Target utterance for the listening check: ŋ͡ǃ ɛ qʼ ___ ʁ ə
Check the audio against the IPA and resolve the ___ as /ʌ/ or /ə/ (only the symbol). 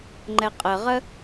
ə